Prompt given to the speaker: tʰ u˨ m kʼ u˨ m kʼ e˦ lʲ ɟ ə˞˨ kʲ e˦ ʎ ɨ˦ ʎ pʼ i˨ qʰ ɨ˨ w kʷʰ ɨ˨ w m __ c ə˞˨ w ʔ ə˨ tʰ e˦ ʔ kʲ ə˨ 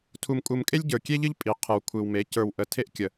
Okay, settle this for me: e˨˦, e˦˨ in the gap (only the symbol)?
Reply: e˨˦